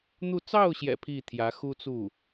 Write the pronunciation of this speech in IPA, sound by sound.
n̪ u˥˧ t͡s ɑ˥˩ ʊ̯ ɕ j ɛ̰˨˩ pʰ i˥˩ t̪ʰ j ä˧˥ x u˥ t͡s u˥˩

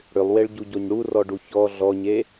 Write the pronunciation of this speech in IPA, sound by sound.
ɽ ʏ lˠ w e ɭ ɟ u ɟ o ɲ ɽ u r ɔ ɖ u ç ɔ ɮ ɔ ɲ e

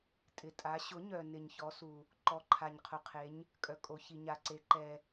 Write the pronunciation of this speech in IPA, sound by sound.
tʼ ɪ˨ tʼ a˨˥ ɕ ʊ˨˥ ɲ œ˨ n ɪ˨ ɲ ç ɔ˨˥ s u˨ | ǃ ɔ˨˥ ǃʰ a˨ ɲ qʰ ʊ˨ qʰ e˨˥ ɲ | kʼ œ˨ kʼ o˨ ç i˨ ɲ a˨ ǀ e˨˥ ǃ ɛ˨

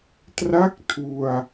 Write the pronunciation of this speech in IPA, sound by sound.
t r a˥˩ k̚ tʰ u˧ a̯

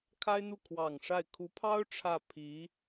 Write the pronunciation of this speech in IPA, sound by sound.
kʰ a˥ ɪ̯ n̪ u˥˩ kʰ w ɑ˨˩ ŋ ʂ a˥˩ ɪ̯ kʰ u˧˥ pʰ ɑ˥ ʊ̯ ʈ͡ʂʰ ä˥˩ pʰ i˧˥

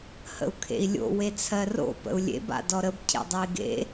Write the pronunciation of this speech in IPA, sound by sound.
h ə̰ u̯ kʰ ḛ i̯ lʲ o̰ w e t͡sʰ ɜ r o̰ p ə̰ u̯ lʲ ḛ b a̰ d ɔ ɾ ə b cʰ ḛ dˤ ɜ i̯ ɡ ḛ

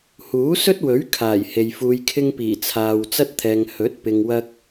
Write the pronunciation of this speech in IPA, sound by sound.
h uː˨˥ s ɵ˥ t̚ w ɵ˨˥ ɥ kʰ aː˨˩ j h e˨ j f uː˧ j kʰ ɪ˥ ŋ p iː˨˩ t͡sʰ aː˨ w t͡s ɐ˥ t̚ t̪ʰ ɛː˨ ŋ h ɵ˨˥ t̚ p ɪ˨ ŋ w ɐ˧ k̚

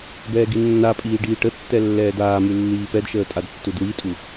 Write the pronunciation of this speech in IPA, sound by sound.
b ɛː ɡ i nː a pʼ iː ɖ iː ʈ ə tː ɛ lː ɛː d aː m ʉ lː iː p ɛ d ʃ əː tʼ a d tː u d w i tʼ u

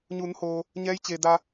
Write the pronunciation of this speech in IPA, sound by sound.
ɲ uː˩˧ n h oː˩ | ɲ ɛː˧˥ j t͡ɕ eː˩ d a˧

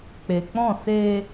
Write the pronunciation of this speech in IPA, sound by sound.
k͡p e˨ k͡p ɔ̃˦˨ s eː˧

